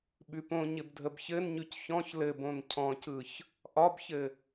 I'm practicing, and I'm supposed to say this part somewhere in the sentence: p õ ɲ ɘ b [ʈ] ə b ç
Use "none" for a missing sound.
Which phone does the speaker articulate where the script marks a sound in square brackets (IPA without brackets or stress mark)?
dʱ